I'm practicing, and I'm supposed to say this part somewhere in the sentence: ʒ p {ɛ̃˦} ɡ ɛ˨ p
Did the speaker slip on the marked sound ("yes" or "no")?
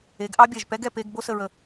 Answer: yes